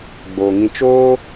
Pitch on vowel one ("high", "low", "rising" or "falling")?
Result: low